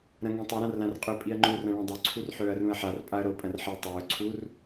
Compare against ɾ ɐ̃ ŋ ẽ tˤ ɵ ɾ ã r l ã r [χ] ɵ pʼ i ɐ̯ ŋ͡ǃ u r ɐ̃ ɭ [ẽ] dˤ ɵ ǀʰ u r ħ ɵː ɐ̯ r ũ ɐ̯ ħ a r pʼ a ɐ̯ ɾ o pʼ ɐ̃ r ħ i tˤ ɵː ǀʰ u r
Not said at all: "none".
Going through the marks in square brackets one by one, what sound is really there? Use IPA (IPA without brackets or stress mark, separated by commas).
qʼ, ẽ